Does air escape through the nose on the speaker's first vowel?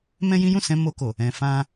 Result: yes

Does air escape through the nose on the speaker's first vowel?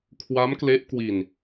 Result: no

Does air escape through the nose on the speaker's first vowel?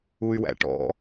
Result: no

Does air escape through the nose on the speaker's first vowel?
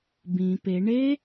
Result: yes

